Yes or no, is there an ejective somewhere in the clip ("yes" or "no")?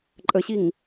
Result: yes